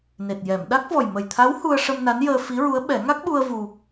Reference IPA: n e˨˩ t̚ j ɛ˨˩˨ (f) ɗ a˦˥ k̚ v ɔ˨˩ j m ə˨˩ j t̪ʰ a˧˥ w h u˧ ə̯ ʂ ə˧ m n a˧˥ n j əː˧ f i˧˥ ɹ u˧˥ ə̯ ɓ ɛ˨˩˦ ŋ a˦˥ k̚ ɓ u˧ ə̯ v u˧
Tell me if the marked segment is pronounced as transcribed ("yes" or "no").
no